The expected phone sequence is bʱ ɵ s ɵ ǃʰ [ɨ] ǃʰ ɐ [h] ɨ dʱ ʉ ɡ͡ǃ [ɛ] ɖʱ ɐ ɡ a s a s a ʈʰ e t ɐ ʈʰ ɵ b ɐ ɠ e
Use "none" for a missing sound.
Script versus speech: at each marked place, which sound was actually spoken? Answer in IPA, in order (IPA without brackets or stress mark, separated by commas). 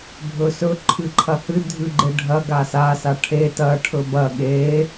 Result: ɨ, h, e